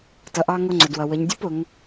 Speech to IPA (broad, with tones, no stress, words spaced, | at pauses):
tʌ˩ʔɑ˧ ŋʊ˧ŋ͡ǀʊ˩dwʌ˩ wə˩˧ɲdʲu˧˥pʊ˩˧ŋ